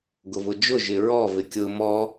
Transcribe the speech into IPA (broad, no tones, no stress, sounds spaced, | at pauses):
ɡ ʊ v ʊ d͡ʒ ʊ ʒ ɪ ɹ ɔ v ɪ kʲ ʊ m ɔ